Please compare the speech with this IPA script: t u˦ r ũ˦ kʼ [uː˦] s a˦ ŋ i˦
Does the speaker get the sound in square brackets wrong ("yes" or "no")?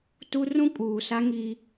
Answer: yes